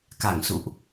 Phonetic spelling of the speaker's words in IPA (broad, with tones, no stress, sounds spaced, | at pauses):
k a˧˩ ŋ s ṵ˧˨ ʔ